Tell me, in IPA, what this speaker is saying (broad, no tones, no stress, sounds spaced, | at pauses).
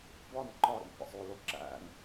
b ɒ n ǃ ɒ ɾ ḭ n qʷ æ̰ sˤ o l o ǁ æ̰ ŋ